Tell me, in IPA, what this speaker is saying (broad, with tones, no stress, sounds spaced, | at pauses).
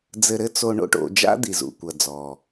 d͡z ɘ˧ ɾ ɘ˦ t͡s o˧ ɳ o̰˦ ʈ o̰˧ d͡ʒ a̰˦ d̪ i˨ z ṵ˨ kʷ ɐ˨ d͡z ɔ˨